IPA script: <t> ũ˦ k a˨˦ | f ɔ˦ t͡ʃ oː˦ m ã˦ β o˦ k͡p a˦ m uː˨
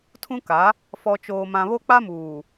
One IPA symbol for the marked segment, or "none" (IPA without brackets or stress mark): tʰ